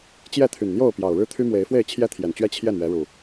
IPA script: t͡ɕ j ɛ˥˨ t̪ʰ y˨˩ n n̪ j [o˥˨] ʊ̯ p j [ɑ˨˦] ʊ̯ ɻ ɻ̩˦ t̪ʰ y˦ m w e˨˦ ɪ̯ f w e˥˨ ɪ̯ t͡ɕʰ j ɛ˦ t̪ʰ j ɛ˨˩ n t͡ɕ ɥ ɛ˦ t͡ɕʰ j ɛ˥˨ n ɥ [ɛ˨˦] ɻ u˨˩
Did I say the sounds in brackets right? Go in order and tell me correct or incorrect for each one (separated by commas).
correct, incorrect, correct